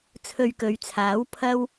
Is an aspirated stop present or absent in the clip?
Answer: present